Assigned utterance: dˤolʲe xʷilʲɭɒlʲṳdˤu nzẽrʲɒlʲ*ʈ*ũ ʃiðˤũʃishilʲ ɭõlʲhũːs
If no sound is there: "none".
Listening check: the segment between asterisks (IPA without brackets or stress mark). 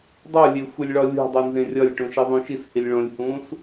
ʈ